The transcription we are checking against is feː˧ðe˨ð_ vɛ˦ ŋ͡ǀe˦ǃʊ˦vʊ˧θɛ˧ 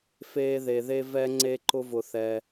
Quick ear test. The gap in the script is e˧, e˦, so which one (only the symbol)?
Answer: e˧